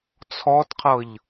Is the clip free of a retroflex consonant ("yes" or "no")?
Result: yes